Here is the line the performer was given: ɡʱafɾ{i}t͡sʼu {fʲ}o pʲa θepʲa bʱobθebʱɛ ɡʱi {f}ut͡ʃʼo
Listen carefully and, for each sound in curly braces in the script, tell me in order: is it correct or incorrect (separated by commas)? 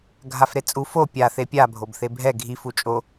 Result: incorrect, incorrect, correct